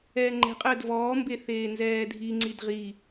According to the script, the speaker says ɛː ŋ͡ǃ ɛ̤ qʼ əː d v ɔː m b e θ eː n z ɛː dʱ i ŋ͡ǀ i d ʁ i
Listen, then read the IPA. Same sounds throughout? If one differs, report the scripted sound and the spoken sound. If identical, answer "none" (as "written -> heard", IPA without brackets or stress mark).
none